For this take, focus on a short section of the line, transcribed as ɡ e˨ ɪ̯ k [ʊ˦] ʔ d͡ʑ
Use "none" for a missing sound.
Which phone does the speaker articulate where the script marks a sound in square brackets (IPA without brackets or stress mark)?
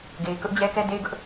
ʊ˦